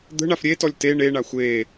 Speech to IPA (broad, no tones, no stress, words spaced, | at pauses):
d̪ə̤ ɳafɾʲetɔlʲ te ɳeɳa xʷe